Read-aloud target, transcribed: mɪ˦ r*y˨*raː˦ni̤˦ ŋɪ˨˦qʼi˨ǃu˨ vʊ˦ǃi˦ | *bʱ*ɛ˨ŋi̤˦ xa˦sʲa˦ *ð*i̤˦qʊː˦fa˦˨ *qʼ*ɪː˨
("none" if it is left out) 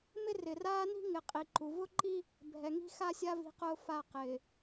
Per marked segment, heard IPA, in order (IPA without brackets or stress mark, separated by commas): ɪ˨, bʱ, v, q